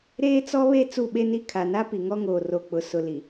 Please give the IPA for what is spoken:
ɾ eː˦ t͡s ɔ˦ β e˦ t͡s u˦˨ ɓ e˦ n i˦ kʰ a˨ n a˦ p i˨ ŋ ɔ˦ ŋ oː˨ r o˨ k͡p ʊ˨ s ʊ˨ l i˨

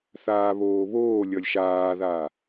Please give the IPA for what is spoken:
θ aː β oː β oː lʲ ʌ lʲ ʃ aː ð aː

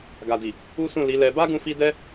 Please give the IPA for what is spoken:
ɡ a˨ d i˨ | u˦ s ũ˦˨ l i˨˦ l ɛ˧ b a˦ ɡ ũ˧ f i˧ d ɛ˦

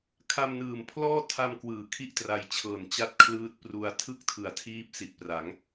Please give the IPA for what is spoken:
kʰ a˧ m n ɯː˨˩ m pʰ l ɔː˥˩ tʰ a˧ m k w ɯː˩˦ kʰ i˥˩ ʔ t r a˧ j t͡ɕʰ ɤː˨˩ n t͡ɕ a˥˩ t̚ kʰ l ɯː˦˥ t̚ p r u˧ a̯ tʰ ɯ˥˩ k̚ tʰ ɯ˨˩ a̯ tʰ iː˦˥ p̚ s i˨˩ t̚ p r a˩˦ ŋ

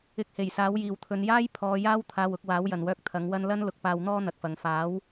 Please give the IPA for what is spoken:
ɪ˨˥ k̚ h e˨˩ j s aː˨˥ w j iː˨ w t̪ʰ ɵ˨˧ n j aː˥ j pʰ ɔː˨˧ j aː˥ w t̪ʰ aː˧ w ʊ˧ k̚ w aː˨˥ w j ɐ˨ n w œː˧ k̚ t̪ʰ ɐ˨˥ ŋ w ɐ˥ n l ɐ˥ n l ʊ˨ k̚ p aː˧ w n̪ ɔː˥ n̪ ɐ˨ k̚ f ɐ˨ ŋ f aː˨˥ w

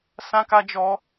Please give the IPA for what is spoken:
s ã˦ k a˦ d͡ʒ ɔ˦

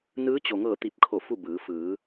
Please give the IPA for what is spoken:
n ɯː˧˥ t͡ɕ o˩ ŋ ɤː˧˩ t̪ i˧˩ p̚ kʰ o˧˩ f u˥˨ b ɯː˩˧ f ɯː˩˧

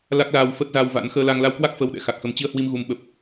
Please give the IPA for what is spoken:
l a˦˥ k̚ l aː˧ w f ə˦˥ t̚ z a˧ w v a̰˧˥ n x əː˧ l a˧ ŋ l a˧ w k w a˦˥ k̚ f əː˧ w ɗ ɛ̰˧˥ x a˨˩ k̚ x ə˨˦ m t͡ɕ i˧ ə̯ h w i˧ m ɣ u˨˦ m ɓ ə˨˩ p̚

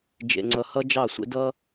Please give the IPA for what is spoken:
d͡ʒ ḛ˨ ŋ͡ǀ ʌ˨ h ʌ˦ d͡ʒ ɑ˦˨ sʷ ḛ˦ d ʌ˦

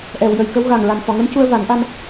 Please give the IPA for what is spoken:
ʔ ɛ˨˩˨ w j ə˨˩˨ j k ə˧˥ w ɣ a˨˩ ŋ ɹ a˨˩ n f ɔ˨˩˨ ŋ ə˧˥ m c u˧ ə̯ v a˨˩˦ n ʔ a˧ m

